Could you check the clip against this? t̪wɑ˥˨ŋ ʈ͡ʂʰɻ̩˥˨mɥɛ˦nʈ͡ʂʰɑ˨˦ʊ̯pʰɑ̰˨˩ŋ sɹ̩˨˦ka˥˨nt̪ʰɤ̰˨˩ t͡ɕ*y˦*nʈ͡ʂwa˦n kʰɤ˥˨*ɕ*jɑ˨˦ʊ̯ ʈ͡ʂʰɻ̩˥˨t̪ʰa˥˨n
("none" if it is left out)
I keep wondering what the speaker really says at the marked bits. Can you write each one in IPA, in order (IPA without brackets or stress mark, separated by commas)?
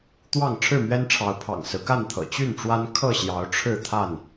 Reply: y˥˨, ɕ